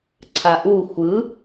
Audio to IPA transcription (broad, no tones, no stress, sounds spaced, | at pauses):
ǀʰ a ʔ u xʷ ɯ